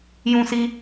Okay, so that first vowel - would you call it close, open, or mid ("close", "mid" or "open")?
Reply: close